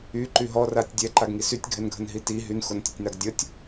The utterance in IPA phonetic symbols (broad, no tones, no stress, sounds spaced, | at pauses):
y ǃ y ɦ ɔ r a tʲ dʲ ɛ ǃ a ɡ ŋ i s y tʲ ɡʱ ɛ n ɡʱ ə n ɦ i t i ɦ y n x o n tʲ ə tʲ n a ɡ dʲ ə tʲ